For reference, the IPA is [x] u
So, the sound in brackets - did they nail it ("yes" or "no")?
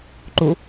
no